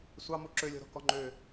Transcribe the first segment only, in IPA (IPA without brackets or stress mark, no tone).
sʷ